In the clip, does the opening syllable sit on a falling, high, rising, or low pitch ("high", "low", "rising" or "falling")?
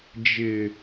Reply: low